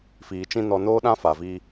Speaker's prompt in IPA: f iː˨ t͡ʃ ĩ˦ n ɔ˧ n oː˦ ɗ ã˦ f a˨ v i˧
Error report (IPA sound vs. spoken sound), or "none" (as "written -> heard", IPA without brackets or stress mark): none